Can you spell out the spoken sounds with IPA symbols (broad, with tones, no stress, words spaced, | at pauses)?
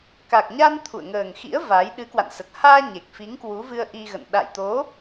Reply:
ka˨˩k̚ɲa˧n t̪ʰṵ˧˨ə̯ŋəː˨˩ŋxḭ˧˥ə̯ va˨˦j ɗɨ˨˦kwa̰˧˨nsə˨˩t̚ haː˧ ɲe˨˩k̚fi˨˦ŋ kwu˨˦vɨ˧ə̯ʔi˧ɣə̰˧˨n ɗa̰˧˨jt̪o˨˦